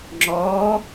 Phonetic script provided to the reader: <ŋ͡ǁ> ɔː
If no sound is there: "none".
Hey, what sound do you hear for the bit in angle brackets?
ŋ͡ǁ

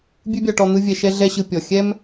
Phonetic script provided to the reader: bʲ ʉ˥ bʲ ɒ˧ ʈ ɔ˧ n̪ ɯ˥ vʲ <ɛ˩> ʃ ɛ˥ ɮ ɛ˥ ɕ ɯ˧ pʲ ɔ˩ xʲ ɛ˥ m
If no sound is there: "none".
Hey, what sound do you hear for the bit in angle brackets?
ɛ˧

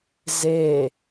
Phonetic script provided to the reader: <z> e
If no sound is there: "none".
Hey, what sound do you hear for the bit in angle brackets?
z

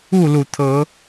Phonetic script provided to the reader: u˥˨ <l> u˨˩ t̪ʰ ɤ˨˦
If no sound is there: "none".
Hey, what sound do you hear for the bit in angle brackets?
l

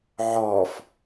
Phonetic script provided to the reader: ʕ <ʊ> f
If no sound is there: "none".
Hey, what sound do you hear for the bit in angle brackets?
ɔ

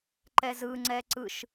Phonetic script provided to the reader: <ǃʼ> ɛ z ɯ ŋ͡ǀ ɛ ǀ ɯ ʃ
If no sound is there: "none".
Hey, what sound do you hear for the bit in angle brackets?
ǃ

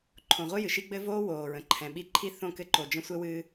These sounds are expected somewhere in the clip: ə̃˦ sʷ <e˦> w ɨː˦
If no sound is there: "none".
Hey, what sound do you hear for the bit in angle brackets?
ɘ˦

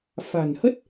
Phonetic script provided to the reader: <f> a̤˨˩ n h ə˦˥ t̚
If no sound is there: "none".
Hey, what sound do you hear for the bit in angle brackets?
f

